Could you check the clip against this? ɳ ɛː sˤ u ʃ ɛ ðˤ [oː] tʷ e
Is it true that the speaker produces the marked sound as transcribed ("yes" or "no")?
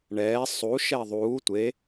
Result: no